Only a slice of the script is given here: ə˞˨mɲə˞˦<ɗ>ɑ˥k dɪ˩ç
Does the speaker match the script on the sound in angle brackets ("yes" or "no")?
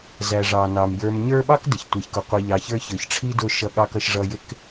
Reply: no